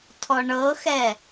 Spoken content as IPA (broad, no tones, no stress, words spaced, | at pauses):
tʰɔɳɤxɛ